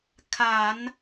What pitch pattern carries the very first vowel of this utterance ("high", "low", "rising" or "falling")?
low